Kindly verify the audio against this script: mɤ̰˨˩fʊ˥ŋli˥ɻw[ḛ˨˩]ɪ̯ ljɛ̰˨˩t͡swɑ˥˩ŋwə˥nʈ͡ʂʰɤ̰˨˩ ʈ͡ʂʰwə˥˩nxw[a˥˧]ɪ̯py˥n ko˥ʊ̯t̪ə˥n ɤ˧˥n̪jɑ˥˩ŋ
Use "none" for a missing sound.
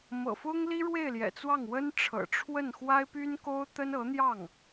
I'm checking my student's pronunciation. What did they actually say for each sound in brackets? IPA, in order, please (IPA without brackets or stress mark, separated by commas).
e˥˩, a˥